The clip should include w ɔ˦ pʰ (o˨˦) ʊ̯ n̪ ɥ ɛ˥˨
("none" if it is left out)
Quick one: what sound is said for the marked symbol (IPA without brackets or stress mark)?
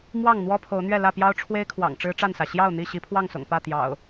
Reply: o˨˦